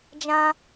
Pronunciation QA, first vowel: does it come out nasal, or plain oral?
nasal